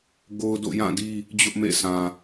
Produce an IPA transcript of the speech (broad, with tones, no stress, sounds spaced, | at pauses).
ɡ o˦ ʊ̯ d o̰˦˨ j ã˦˨ d i˦ | d͡ʑ ʊ˦ ʔ m ḛ˦˨ s ã˨